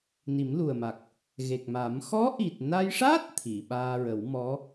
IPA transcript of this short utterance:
n i˨˩˦ m l u˨˩ ə̯ m a˨˩ k̚ | ɣ e˨˩ k̚ m a˨˩˦ m x ɔ˧˥ ʔ i˨˩ t̚ n a˧ j ʂ aː˦˥ t̚ t̪ʰ i˨˩˨ ɓ aː˧ ɹ ə˨˩˦ w m ɔ˧˥

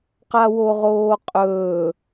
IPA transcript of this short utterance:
q a w o ʁ oː qʼ ɵː

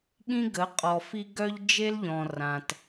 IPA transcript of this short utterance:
ɠ ĩ˦ ɡ ə˨˦ qʼ ɔ˨ f i˦ ɡ œ˦ ʎ d͡ʒ e˦ l ʎ ɔ̃˨ r ã˨ t

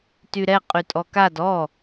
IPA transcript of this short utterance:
t y ɾ ɛ qʼ y tʼ ɔ k a d ɔ

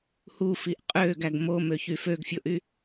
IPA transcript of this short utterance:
h u f i ʔ qʼ ø ɡ æ ɡ m o m ø ç y f ø ɡ fʲ o ʔ y

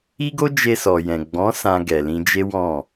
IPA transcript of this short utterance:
i˦ ɡ o˦ d͡ʒ e˧ s ɔ˨ j ɛ̃˨ ɡ͡b ɔ̃˨˦ s ã˧ ɡ ɛ˨ l ĩ˧ d͡ʒ e˦ w ɔ̃˦˨

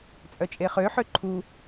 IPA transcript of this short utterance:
t͡sʼ œ t͡ʃʼ e χ ø ħ ø ǃʰ u

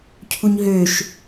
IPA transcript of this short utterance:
cʰ u ɲ ɦ ø ʃ

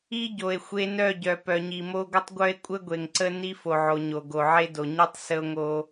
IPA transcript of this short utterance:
i˦ ɟ o˨ e̯ xʷ e˦ n œ˦˨ ɟ œ˨ p œ˨ ɲ i˨ m o˦ ɡʷ ə˦ tˤ ɡʷ œ˦ e̯ kʷʼ ə˦ ɡʷ e˨ ŋ ǀ ə˦ n i˦ f o˨ ʕ o˨ ɲ o˨ ɡ o˨ ʕ e˦ d o˨ ɲ i˦ tˤ s ə˦ o̯ ŋ o˦

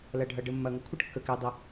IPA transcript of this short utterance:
l ɐ˨ ɖʱ ɐ˨ ɖ ə˨ mː ɐ˨ ŋ ə˥ kʷʰ ə˥ ʈ kː ə˨ k ɛ˨ dˤ ə˨

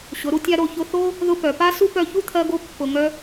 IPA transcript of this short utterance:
ɕ ʊ˨˦ ɾ u˧ tʲ a˦ ɾ o˧ ç ʊ˧ θ o˦ | ð ʊ˦ p œ˨ p a˦ s u˦ p œ˧ ç u˦ t̪ʰ ɜ˧ ɡ o˧ pː ʊ˨ ŋ œ˧

